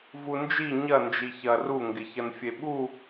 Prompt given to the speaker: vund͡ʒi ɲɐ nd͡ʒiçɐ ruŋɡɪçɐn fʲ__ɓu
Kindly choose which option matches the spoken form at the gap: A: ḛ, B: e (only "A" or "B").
B